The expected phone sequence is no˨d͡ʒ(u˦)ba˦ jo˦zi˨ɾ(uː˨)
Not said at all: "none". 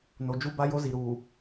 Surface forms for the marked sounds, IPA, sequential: u˦, uː˨

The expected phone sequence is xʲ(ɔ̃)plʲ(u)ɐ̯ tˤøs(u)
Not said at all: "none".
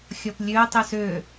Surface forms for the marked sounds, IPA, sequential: ɔ, ø, ø

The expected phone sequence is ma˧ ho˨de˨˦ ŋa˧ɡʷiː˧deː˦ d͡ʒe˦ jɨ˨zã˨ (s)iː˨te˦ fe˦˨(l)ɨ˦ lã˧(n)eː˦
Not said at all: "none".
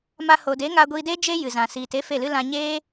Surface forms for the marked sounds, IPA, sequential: s, l, ɲ

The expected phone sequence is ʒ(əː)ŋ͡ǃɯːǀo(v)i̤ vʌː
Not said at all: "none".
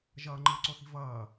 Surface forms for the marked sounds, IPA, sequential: ʌː, θ

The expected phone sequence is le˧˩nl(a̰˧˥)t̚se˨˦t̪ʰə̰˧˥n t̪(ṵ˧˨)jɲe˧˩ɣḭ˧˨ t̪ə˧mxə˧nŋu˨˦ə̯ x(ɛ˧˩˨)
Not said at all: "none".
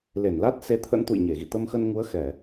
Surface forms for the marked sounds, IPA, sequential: a˦˥, ṵ˧˨, ɛ˧˩˨

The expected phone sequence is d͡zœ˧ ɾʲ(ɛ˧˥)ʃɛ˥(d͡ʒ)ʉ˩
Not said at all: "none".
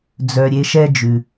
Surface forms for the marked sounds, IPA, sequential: e˧˥, d͡ʒ

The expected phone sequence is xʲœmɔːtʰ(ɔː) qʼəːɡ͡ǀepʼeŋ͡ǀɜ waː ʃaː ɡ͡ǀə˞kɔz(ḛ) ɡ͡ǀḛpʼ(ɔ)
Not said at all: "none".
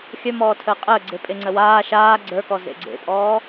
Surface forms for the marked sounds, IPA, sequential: əː, ḛ, ɔː

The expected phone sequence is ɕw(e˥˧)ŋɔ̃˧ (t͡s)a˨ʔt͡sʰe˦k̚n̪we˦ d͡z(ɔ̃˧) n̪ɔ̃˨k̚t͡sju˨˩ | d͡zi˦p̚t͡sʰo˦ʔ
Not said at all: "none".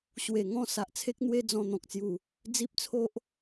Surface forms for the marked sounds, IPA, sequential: e˨˩, s, ɔ̃˧

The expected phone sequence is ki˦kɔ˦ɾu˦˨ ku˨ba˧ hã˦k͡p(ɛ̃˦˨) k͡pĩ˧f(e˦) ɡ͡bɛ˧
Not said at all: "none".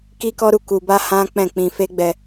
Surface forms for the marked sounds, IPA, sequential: ɛ̃˦˨, e˦

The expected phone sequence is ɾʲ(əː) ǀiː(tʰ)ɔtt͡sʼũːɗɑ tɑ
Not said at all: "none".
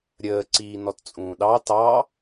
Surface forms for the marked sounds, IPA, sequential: əː, n

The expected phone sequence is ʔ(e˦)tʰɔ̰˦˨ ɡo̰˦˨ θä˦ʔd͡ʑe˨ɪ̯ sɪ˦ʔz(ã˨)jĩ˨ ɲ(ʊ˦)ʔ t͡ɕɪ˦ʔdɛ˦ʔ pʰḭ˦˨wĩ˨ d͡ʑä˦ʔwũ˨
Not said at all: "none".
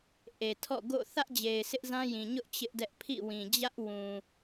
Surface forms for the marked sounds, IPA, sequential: e˨, ã˦, ʊ˦

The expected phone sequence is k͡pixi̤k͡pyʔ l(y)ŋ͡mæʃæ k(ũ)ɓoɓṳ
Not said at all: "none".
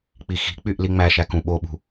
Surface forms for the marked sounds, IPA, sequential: i, ũ

